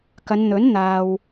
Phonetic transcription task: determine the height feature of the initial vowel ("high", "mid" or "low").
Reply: low